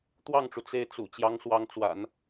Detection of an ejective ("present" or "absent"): absent